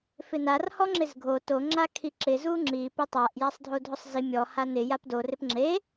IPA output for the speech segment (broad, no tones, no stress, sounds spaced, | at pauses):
f ɪ n a r h ɔ ŋ͡ǁ ɪ z ɡʱ o t o ŋ͡ǁ a kʰ i ǁ ɪ z u ŋ͡ǁ i p ɪ tˤ a ʔ j a sˤ dʱ o dʱ ʊ sˤ z i mʲ ɔ h a n ɪ j a p d o r ɪ p ŋ͡ǁ e